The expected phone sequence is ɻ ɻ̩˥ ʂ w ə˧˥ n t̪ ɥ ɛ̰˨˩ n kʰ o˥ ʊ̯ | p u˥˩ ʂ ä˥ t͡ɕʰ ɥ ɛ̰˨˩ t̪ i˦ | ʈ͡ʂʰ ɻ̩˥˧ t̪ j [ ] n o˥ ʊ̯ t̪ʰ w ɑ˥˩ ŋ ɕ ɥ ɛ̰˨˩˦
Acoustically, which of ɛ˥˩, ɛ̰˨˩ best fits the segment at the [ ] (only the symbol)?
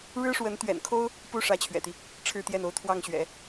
ɛ˥˩